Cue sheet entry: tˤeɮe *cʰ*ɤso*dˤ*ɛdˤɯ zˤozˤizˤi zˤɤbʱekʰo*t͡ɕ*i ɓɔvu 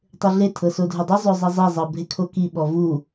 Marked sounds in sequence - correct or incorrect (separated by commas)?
incorrect, incorrect, incorrect